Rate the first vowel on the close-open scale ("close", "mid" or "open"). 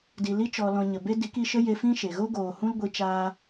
close